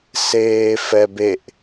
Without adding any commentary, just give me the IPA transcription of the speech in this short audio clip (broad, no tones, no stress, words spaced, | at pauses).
seːfɛbeʔ